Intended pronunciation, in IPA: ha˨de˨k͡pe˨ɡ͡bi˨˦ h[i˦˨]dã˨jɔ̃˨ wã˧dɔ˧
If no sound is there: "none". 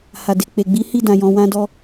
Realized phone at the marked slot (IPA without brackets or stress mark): i˦˨